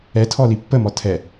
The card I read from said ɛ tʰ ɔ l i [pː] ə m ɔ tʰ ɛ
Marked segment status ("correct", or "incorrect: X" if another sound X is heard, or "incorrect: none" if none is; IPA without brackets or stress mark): correct